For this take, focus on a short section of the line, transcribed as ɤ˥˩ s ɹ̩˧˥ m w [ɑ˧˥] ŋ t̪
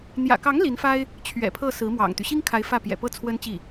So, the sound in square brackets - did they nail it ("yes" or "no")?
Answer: no